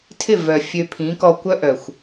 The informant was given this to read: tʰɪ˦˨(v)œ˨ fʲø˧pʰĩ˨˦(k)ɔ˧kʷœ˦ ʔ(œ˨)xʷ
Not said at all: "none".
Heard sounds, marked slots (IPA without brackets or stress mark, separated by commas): v, k, œ˨